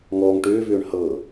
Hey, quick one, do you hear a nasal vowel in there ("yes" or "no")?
no